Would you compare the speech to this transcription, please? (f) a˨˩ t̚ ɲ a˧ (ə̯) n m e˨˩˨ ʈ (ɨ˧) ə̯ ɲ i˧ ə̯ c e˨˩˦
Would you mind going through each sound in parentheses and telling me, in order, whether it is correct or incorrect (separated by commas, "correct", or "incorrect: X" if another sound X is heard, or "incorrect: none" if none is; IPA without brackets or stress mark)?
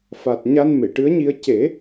correct, incorrect: none, incorrect: ɨ˧˥